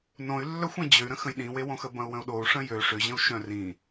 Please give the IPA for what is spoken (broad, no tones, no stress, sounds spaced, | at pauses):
n õ y̯ lː œ xʷ ẽ d͡ʑ ø y̯ ɾ ə̃ x ə̃ j ɗ ĩ w e w õ x ə b ɐ̃ u̯ w ə̃ u̯ ɗ o u̯ ʂ ə̃ j ø ʂ ʏ ʑ ə̃ u̯ ʃ œ̃ r ĩ